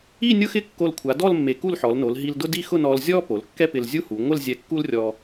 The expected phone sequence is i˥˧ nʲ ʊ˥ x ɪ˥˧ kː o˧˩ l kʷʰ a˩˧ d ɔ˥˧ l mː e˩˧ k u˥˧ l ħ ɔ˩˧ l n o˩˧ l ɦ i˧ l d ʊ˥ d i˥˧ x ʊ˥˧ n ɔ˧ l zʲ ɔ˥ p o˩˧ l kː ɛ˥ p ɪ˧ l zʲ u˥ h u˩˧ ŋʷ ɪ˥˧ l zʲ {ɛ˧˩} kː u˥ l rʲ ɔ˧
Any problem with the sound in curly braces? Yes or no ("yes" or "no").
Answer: yes